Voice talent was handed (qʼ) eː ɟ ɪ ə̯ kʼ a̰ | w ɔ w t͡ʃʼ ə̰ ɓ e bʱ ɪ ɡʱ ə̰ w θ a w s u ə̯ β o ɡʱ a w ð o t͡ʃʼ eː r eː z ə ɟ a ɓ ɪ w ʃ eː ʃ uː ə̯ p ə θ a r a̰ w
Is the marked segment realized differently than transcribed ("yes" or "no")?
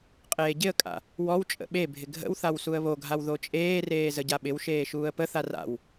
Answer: no